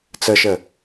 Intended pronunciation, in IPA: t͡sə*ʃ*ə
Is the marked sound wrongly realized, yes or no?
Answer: no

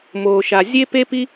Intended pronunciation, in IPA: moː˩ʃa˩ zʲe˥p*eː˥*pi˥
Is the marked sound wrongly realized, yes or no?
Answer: yes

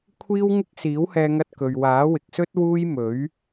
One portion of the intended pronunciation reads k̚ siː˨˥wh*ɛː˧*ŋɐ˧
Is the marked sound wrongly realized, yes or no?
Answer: no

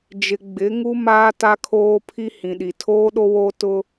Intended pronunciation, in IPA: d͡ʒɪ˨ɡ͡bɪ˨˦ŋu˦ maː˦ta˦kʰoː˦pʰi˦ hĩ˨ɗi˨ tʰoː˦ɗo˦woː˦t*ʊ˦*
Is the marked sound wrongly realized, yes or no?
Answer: no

